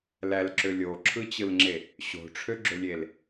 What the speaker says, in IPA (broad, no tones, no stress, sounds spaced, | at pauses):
l æ l ǁ ø lʲ o ǁʰ ɯ t͡ɕ ɯ l ŋ͡ǁ e | ɕ o̤ ʈ͡ʂʰ ø ɡ͡ǁ ø lʲ e l